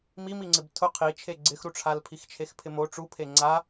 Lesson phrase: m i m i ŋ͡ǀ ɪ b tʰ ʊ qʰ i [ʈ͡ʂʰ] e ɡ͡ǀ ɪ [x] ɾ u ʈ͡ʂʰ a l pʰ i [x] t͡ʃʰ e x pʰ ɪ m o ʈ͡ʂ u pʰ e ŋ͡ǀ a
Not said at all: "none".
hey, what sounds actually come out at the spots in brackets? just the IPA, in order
t͡ʃʰ, x, x

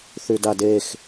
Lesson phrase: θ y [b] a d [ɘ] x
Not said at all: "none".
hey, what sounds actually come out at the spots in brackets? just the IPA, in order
d, e

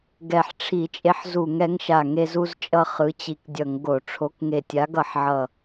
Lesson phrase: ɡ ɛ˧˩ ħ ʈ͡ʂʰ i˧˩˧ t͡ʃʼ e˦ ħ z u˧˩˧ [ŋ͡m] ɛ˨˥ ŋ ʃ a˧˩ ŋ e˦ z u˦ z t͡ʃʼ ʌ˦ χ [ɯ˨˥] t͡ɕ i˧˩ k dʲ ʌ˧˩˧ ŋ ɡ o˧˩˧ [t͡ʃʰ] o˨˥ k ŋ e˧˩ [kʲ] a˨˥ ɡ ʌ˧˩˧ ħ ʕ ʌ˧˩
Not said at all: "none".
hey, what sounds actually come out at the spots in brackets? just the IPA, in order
ŋ, ɯ˨˥, ʈ͡ʂʰ, tʲ

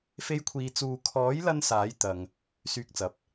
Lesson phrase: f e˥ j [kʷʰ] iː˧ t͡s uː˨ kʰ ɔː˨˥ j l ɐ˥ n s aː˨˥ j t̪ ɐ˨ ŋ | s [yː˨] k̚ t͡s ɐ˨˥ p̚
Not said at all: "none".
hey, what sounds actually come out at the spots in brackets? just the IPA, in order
kʷʰ, yː˧

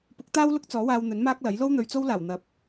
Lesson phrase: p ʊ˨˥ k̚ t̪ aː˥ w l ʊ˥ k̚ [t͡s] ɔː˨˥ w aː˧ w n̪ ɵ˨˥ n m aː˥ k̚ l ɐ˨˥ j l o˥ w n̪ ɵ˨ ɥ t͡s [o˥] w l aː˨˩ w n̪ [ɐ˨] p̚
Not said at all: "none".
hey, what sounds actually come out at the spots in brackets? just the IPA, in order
t͡s, o˥, ɐ˨˥

